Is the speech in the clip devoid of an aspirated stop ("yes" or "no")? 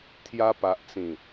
no